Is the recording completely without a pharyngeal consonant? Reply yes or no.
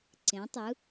yes